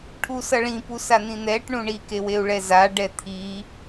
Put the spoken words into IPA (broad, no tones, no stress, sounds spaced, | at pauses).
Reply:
ʈʰ u s ʌ ɭ ĩ p u s a n̪ ĩ n̪ ɛ ʈ ɳ ũ ɳ i k e w e u̯ ɭ ɛ z a ɖ ɛ t̪ʰ i